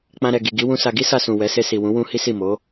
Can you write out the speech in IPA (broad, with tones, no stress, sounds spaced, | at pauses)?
k͡p ã˧ ɾ ɛ˨ ɡ i˨ ɡ i˨˦ w ũ˧ s a˧ ɡ i˦ s a˧ s ũ˨ w ɛ˨˦ s e˧ s i˨ w ũ˨˦ w ũ˦ h i˦ s i˦˨ m o˨˦